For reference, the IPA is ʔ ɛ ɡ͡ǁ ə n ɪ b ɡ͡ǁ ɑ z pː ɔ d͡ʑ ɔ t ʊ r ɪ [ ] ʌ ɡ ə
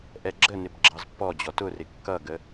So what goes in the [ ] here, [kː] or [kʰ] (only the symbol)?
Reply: kː